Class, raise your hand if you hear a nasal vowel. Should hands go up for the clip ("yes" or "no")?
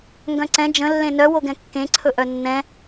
yes